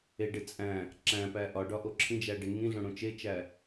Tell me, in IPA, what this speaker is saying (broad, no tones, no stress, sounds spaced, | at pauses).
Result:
e ɖ e t͡sʼ æ̃ | ǁ æ̃ p æ ʔ ɒ ɖ ɒ ʔ o ǁʰ ĩ d͡ʒ æ ɖ e ŋ ĩ ɮ õ ɽ õ t͡ʃ e t͡ʃ æ